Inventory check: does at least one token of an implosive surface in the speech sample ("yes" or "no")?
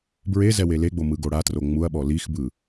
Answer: yes